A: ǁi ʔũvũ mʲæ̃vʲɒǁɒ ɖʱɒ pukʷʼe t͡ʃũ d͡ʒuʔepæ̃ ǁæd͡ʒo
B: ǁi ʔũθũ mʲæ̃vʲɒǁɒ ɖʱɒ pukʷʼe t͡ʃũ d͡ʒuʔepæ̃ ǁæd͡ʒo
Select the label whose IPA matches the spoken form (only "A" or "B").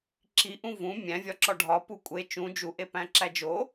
A